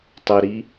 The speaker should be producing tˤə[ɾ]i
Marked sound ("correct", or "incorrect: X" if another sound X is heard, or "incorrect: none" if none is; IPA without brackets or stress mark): correct